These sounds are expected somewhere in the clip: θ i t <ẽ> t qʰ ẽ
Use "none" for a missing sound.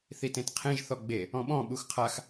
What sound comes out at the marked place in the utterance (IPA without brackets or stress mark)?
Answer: ẽ